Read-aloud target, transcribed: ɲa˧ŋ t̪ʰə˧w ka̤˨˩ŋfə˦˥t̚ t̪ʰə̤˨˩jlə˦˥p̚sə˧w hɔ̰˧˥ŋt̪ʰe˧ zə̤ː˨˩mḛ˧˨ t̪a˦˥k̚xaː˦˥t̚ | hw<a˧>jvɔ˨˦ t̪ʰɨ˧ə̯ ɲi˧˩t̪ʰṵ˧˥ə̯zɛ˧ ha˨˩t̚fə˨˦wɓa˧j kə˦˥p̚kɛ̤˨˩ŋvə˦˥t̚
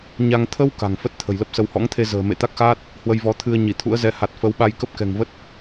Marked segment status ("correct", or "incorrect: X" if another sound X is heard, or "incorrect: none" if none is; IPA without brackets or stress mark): incorrect: ə˧